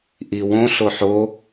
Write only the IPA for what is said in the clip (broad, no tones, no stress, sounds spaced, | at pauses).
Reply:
ʔ i w õ ɬ o ħ o